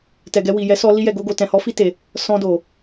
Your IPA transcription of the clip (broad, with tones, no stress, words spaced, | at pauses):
tɛ˨ɡɛ˧ wi˨jɛ˨˦sɔ˧ li˦jɛ˧ɡo˦ɡo˧ tɛ̃˨hɔ˨˦fi˧te˨ | sɔ̃˧do˨